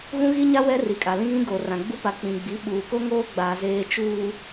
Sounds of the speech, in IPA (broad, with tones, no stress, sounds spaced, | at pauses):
ɣ ũ˦ ɣ i˦ ɲ a˦ w ɛ˦ r i˨ kʼ a˨ l ĩ˦ ɣ ĩ˦ ɡ oː˨ r ã˨ ɡ͡b u˦ p a˨ k͡p ĩ˨ ɡ͡b i˨˦ ɓ uː˨ k o˦ ŋ oː˦ ɡ͡b aː˨ z eː˨ t͡ʃ uː˨